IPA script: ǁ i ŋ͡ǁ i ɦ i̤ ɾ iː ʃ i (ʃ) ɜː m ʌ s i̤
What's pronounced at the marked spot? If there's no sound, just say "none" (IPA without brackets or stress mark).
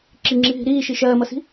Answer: ʃ